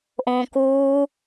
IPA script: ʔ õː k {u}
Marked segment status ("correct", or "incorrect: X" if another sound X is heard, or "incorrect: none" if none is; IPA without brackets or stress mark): incorrect: uː